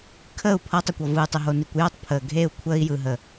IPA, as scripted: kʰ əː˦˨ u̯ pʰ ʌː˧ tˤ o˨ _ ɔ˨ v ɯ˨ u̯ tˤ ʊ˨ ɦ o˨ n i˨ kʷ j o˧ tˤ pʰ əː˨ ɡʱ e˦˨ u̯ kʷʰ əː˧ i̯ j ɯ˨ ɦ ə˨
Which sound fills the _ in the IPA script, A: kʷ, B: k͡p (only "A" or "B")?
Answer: A